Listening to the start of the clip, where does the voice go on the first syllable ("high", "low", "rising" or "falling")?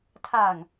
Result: low